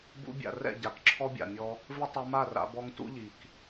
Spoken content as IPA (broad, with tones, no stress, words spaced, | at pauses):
bṵ˧bʲa̰˨rɛ̰˦˨ ɟa˨kǁʰɔ˦bʲa̰˨mʲɔ˧ | vɪ˦tˤo˧ma˦˨ra̰˧ bɔ˧ŋ tṵ˦ʎi˨k